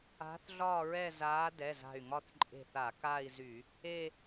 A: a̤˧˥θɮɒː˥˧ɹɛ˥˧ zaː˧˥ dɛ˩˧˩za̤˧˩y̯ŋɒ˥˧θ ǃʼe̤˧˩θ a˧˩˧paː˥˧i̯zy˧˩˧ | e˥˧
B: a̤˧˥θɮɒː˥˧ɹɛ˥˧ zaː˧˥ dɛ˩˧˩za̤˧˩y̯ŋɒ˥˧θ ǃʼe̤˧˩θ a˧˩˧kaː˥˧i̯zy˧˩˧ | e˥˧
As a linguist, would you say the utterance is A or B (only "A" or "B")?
B